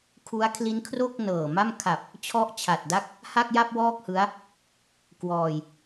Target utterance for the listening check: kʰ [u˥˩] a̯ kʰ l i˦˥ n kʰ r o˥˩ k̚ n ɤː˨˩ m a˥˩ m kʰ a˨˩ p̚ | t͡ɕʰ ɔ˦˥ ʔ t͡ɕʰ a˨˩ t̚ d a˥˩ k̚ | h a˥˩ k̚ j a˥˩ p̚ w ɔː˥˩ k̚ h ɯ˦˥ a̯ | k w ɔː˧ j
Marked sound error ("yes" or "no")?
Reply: yes